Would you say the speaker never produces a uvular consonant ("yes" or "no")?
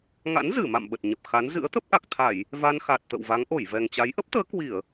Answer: yes